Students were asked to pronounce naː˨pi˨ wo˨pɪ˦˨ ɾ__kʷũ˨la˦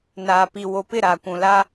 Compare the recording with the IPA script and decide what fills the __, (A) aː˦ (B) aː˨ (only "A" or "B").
B